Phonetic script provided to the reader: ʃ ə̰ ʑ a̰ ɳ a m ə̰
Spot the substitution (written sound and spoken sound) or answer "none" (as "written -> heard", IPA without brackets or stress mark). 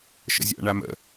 ʑ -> zʲ